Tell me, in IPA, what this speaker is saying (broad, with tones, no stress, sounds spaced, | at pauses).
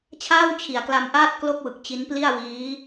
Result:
t͡ɕʰ aː˥˩ w t͡ɕʰ i˩˦ a̯ k l a˧ m ʔ aː˥˩ t̚ k l o˥˩ k̚ w ɯ˨˩ k̚ t͡ɕ i˦˥ n p l i˥˩ a̯ w iː˦˥